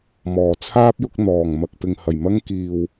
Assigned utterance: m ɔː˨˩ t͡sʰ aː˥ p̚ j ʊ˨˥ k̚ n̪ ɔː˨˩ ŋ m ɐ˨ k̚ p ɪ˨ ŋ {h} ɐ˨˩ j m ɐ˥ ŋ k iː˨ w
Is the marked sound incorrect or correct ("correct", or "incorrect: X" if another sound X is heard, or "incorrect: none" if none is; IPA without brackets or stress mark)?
correct